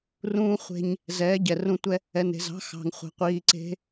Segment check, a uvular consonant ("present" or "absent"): present